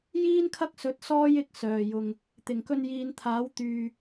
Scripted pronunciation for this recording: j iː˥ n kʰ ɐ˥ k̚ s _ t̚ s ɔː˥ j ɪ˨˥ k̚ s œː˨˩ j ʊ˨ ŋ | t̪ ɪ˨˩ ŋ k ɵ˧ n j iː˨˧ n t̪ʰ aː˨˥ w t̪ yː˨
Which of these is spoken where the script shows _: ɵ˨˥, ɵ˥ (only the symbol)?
ɵ˨˥